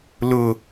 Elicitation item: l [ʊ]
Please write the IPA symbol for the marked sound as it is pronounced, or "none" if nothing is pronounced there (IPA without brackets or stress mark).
ʊ